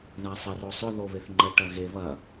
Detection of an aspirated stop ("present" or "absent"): absent